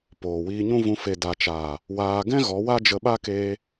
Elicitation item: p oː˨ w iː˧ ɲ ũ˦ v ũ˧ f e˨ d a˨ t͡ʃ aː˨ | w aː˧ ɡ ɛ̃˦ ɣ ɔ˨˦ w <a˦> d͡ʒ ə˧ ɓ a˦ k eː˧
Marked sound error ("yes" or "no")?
no